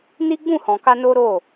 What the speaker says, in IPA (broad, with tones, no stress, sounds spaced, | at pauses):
n i˦ ɡ͡b ũ˦˨ h ɔ̃˨ k a˧ n o˦ ɾ o˦˨